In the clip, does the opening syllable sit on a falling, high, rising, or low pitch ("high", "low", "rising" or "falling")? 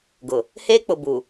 low